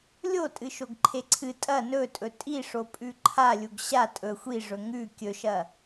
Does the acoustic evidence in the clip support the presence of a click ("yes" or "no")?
yes